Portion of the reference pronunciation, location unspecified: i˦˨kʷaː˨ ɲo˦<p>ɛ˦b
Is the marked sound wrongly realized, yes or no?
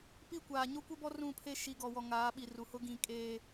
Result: yes